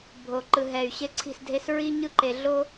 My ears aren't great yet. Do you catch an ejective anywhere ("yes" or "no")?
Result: no